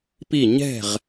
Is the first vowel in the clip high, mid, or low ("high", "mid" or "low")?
high